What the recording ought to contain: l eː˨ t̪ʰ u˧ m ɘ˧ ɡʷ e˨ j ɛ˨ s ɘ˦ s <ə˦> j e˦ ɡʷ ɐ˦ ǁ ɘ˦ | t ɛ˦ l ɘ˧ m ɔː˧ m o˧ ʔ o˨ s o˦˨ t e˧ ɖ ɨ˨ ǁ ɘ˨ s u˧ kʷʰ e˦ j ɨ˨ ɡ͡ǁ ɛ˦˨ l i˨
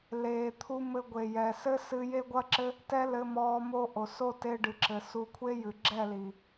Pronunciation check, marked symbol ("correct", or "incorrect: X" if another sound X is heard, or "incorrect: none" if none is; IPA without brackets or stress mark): incorrect: ɨ˦